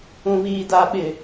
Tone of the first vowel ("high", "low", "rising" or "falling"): low